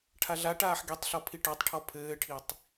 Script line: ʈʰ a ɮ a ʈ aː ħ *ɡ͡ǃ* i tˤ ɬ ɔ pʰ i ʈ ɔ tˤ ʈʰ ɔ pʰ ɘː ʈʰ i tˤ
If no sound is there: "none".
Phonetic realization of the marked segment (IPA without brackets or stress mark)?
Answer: ɡ